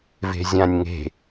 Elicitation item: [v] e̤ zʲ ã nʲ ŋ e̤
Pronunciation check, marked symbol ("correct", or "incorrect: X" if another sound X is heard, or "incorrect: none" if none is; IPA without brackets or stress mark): correct